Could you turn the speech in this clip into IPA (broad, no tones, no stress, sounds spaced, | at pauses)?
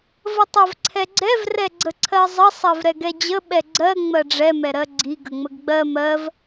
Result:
v ə tˤ ɜ v ǀʰ ɛ ɡ͡ǀ ɛ v r ɛ ɡ͡ǀ ə ǀʰ ɜ zˤ ə sˤ ɜ v ɾ ɛ ɡ ɛ d͡ʑ ə ɓ ɛ ɡ͡ǀ ɜ ŋ͡m ɜ ɖ͡ʐ ɛ m ɛ ɾ ɜ ɡ͡ǀ i ɡ ə ŋ͡m ə ɡ ɡ͡b ɜ m ɜ v